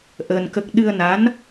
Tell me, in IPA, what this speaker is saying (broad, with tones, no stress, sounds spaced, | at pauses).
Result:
ʔ əː˧ n k ə˦˥ k̚ ɗ ɨ˧ ə̯ n a˧˥ n